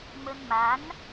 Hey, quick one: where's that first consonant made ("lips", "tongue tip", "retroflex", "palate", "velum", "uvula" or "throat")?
lips